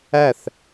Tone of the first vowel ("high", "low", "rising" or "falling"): falling